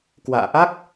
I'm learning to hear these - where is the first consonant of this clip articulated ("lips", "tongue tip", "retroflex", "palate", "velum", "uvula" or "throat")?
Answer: velum